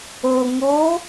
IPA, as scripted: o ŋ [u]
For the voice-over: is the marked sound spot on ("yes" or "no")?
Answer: no